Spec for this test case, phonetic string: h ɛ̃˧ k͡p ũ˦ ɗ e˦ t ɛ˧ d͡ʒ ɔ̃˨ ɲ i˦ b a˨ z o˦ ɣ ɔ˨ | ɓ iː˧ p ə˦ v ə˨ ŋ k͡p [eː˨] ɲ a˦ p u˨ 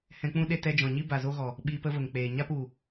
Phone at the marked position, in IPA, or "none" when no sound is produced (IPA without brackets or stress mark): eː˨